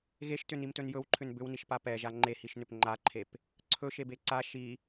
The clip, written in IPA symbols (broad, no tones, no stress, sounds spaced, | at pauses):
ɣ e ʃ t ʏ n i m t ɵ n j ɵ w ǃʰ ʏ n b ʏ w n i ʃ p a p ɛ ʒ a ŋ͡ǃ e h i ʃ n ʏ p ŋ͡ǃ a ǃʰ e p | ǀʰ ɵ ʃ e b e ǀ a ʃ i